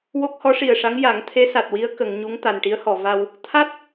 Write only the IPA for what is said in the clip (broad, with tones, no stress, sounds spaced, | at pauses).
w o˦˥ k̚ h ɔ˧˥ ʂ i˨˩ ə̯ ʂ a˧˥ ŋ j a˨˩˦ ŋ t̪ʰ e˧˥ s a˨˩ t̚ w i˧˥ ə̯ k ə˨˩˨ ŋ ɲ u˧˥ ŋ t̪ a˨˩ n ʈ i˧˥ ə̯ h ɔ˨˩˨ v a˧ w | t̪ʰ a˦˥ t̚